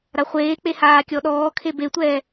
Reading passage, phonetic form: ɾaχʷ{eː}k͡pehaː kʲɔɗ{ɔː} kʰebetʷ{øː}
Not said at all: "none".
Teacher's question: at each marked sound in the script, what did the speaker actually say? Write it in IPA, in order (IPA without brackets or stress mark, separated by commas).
eː, ɔː, ɛː